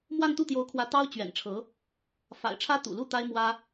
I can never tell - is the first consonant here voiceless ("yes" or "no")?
no